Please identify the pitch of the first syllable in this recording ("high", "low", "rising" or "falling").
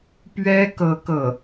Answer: high